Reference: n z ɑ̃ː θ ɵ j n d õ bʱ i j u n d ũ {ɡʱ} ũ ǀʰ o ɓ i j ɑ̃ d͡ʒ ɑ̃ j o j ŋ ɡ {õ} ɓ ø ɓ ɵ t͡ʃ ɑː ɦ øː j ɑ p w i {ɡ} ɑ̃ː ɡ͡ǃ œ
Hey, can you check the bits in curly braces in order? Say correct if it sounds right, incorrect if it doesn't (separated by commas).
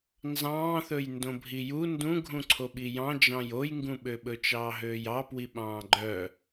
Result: correct, incorrect, incorrect